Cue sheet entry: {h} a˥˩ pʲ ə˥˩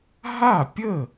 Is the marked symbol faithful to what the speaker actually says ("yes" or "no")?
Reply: no